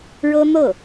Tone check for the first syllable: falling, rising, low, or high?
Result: high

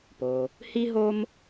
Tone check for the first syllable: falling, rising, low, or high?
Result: low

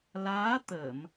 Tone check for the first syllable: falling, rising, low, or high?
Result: rising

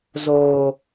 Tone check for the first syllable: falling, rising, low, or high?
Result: low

